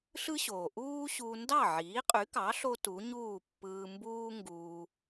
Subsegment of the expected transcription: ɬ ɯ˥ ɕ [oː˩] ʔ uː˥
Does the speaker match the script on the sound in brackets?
yes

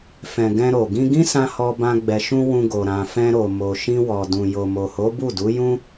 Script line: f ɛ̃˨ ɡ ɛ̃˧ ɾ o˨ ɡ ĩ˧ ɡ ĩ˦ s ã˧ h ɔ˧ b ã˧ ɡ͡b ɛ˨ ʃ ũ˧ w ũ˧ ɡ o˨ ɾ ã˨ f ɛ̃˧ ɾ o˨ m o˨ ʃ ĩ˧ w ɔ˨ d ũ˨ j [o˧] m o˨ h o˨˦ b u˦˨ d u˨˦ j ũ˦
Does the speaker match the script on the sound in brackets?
no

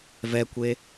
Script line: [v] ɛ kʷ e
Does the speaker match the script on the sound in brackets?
yes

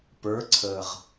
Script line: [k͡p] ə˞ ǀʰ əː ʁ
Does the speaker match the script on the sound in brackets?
no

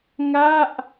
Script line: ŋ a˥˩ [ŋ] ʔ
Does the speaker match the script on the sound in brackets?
no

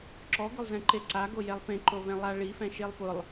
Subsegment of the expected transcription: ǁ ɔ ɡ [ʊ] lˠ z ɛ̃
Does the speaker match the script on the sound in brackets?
yes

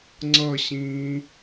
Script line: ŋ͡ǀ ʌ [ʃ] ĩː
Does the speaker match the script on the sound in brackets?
no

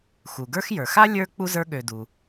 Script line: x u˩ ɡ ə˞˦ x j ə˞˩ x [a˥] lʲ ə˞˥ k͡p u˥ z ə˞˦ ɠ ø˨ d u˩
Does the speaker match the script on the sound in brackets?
yes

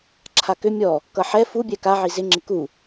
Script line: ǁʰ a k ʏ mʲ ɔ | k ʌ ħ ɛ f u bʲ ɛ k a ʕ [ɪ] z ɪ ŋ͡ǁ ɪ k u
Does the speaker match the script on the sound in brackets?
no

